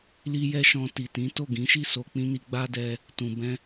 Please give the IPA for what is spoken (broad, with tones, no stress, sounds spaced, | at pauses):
l i˦ j ɛ˦ ʃ ɔ̃˧ t i˨ t ĩ˨˦ t o˦˨ ɡ ĩ˨˦ ʃ i˦˨ s o˧ k͡p ĩ˦ n i˧ ɡ͡b a˦ d ɛ˧ | t ũ˨ b ɛ̃˧